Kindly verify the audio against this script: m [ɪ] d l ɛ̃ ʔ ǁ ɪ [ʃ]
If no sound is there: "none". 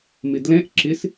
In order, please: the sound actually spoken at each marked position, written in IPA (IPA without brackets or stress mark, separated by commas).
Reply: ɪ, s